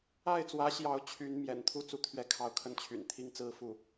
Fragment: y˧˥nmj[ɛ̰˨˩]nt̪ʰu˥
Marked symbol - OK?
yes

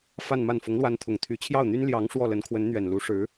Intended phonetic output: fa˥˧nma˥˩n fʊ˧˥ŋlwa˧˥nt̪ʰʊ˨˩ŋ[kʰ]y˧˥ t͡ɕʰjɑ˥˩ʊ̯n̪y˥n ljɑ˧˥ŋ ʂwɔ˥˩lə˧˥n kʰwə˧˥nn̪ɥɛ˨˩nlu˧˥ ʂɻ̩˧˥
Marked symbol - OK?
no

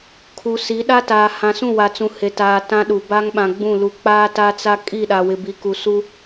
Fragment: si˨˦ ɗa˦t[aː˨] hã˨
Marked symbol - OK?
yes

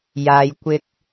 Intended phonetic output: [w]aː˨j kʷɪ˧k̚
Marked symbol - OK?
no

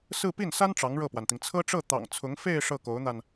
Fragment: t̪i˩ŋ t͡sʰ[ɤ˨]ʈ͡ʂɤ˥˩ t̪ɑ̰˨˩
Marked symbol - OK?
no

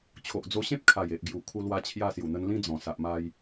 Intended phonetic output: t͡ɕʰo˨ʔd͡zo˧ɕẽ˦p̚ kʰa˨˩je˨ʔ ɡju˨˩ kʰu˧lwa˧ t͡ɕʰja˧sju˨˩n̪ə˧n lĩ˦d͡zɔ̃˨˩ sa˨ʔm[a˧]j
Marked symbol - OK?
yes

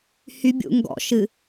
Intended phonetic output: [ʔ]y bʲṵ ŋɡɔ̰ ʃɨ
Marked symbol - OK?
no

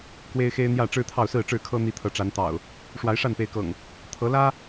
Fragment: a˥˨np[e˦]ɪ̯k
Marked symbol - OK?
no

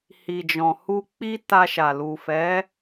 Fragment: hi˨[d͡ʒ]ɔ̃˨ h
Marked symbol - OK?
yes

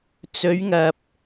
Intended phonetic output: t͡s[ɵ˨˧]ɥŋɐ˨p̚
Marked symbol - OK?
yes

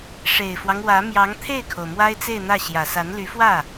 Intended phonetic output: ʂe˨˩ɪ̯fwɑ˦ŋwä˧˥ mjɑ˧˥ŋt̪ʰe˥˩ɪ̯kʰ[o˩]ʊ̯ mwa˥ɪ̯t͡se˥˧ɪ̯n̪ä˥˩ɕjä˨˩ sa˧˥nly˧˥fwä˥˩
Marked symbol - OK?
yes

